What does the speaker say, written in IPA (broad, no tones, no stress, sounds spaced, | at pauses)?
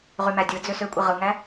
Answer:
ʁ y m æ dʲ ɯ d͡z ø s ø kʷʼ i ʁ ɯ ŋ æ